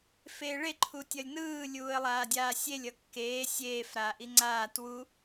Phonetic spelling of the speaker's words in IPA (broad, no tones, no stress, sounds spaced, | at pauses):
f eː ɭ e ǃʰ u tʲ ʌ lʲ n ɯː lʲ uː ə̯ lˠ aː dʲ aː sʲ e lʲ ʌ kː eː sʲ eː f ɾ aː ʔ i ŋ͡ǀ aː t w u